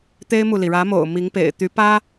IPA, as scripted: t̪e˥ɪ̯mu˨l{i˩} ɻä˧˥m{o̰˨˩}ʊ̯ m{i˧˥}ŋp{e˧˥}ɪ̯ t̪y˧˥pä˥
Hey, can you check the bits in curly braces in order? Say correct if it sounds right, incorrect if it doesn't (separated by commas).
correct, correct, correct, incorrect